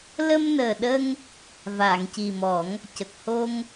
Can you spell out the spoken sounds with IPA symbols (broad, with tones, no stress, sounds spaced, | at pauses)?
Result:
l ə˧ m n əː˨˩ ɗ ə˧ ŋ | v aː˨˩˨ ŋ c i˨˩ m ɔ˨˩˦ ŋ | c ə˨˩ k̚ h o˧ ŋ